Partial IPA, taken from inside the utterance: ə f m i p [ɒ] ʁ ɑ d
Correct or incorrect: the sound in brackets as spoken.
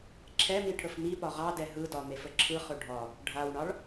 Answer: correct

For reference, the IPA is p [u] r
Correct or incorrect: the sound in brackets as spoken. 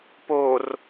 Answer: incorrect: o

